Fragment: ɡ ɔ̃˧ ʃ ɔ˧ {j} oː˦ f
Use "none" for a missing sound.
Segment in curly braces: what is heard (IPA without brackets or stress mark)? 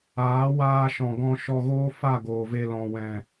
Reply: ɣ